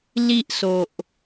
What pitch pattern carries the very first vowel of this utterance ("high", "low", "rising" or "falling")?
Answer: high